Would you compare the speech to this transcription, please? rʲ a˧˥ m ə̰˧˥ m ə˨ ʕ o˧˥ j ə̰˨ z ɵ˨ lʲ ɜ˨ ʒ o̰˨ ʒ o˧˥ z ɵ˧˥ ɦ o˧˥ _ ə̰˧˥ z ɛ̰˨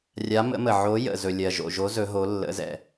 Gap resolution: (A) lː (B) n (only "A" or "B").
A